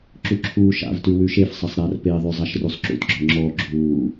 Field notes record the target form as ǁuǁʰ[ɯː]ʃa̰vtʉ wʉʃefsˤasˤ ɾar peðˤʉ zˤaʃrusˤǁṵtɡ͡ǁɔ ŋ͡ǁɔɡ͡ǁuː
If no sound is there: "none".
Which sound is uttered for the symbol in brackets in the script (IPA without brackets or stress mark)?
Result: uː